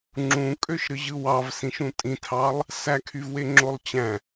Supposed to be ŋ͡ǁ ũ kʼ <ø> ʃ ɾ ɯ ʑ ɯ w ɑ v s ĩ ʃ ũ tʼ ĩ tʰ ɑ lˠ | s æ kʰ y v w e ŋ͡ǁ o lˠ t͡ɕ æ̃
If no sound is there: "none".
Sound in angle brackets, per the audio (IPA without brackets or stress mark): ø